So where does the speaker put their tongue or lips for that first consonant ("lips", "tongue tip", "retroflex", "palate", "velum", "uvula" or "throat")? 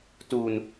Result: tongue tip